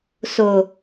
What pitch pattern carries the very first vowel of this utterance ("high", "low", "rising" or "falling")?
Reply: low